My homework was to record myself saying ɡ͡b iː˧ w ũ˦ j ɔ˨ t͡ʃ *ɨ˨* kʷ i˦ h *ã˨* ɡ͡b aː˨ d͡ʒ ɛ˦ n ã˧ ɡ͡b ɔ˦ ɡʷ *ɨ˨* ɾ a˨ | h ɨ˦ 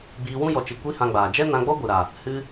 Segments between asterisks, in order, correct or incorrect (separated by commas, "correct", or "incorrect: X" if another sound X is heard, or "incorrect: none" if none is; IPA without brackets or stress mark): correct, incorrect: ã˧, correct